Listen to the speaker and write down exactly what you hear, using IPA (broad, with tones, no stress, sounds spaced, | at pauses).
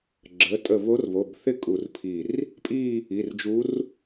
ɡ͡ǁ ə˩˧˩ tʼ ə˧˩ β o˧˥ r β o˩˧˩ b θ ɪ˥˧ kʼ u˧˩ r pʰ i˧˩ r | pʼ i˥˧ | i˩˧˩ r d͡ʒ u˧˥ r